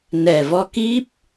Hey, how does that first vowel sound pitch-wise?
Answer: low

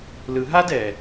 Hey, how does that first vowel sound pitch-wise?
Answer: low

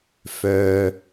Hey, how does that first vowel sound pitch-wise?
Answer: low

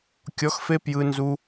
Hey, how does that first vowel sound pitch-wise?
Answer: rising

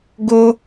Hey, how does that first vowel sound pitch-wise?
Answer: high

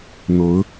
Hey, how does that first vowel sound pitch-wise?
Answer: rising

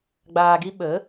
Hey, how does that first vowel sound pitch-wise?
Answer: low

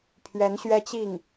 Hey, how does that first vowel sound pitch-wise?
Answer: rising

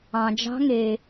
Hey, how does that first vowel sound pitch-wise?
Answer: low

